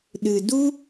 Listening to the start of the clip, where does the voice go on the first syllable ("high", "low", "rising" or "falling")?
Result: low